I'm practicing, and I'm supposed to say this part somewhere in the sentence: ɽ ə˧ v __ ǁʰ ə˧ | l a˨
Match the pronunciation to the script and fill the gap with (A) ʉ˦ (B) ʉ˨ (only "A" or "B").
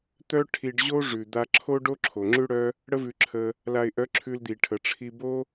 B